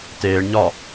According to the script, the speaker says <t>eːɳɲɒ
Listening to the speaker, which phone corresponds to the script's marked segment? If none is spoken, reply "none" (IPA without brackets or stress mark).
t